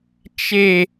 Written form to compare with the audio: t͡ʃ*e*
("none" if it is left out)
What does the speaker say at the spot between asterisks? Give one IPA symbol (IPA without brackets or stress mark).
e